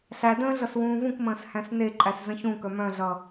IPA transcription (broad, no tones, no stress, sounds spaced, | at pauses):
ɬ æ d ə̃ː ɮ ʌ s w ũː v ũ k m ə̃ː s h æ̃ s n e ǃʼ æ s z ə̃ ç ũ k œ m œ̃ ɮ ʌ